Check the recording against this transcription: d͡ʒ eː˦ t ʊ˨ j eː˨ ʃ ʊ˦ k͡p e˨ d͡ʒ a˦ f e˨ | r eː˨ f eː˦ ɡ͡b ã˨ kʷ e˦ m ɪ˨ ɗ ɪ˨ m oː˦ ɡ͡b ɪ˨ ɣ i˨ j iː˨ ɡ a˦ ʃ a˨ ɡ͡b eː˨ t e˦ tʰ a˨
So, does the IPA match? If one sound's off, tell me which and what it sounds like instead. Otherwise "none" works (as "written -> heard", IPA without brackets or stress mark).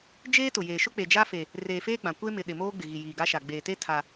none